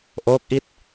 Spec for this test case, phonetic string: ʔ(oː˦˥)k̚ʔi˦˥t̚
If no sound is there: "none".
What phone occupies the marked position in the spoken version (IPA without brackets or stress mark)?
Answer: oː˦˥